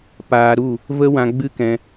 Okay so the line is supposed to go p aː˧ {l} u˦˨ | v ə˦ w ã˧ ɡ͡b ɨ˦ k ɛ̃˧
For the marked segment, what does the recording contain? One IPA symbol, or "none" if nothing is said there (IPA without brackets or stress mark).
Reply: ɾ